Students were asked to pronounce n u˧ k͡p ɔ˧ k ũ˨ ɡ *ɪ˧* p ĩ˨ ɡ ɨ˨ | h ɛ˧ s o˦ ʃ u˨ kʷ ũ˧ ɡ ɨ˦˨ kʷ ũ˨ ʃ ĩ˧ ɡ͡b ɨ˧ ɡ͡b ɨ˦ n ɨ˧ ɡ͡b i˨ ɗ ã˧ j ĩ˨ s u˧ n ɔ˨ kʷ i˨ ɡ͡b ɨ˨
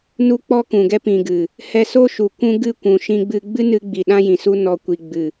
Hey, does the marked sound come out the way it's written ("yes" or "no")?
no